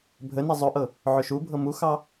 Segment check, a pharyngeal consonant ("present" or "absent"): present